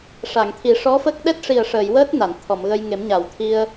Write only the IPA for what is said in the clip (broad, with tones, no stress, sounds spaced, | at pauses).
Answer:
ʂ a˨˩˨ ŋ t̪ʰ i˨˩˦ ʂ ɔ˧˥ f ə˦˥ k̚ ɗ ɛ˦˥ t̚ ʂ i˨˩ ə̯ ʂ əː˨˩˨ j w əː˦˥ t̚ n a˨˩˨ n t̪ʰ ɔ˨˩˨ m ɣ ə˧ j ŋ e˨˩˦ m ɲ a˨˩˨ w t̪ʰ i˧ ə̯